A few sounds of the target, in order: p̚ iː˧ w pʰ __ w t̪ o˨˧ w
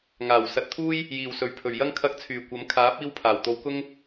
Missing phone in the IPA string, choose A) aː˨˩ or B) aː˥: A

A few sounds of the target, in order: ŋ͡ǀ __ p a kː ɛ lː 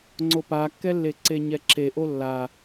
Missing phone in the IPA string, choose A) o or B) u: A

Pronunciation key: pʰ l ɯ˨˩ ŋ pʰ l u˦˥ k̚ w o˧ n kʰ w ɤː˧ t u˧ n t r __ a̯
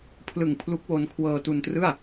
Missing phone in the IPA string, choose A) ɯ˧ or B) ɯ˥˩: B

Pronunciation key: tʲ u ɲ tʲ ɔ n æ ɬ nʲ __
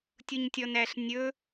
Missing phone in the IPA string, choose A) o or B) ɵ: B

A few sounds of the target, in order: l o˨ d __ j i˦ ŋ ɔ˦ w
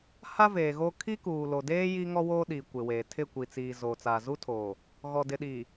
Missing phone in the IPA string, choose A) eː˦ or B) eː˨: A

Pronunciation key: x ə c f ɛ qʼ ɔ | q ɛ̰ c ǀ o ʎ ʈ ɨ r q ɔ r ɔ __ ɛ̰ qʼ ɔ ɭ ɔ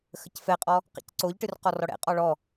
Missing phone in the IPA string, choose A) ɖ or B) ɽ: B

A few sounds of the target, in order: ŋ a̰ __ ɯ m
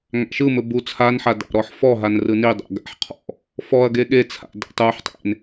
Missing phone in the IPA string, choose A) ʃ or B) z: A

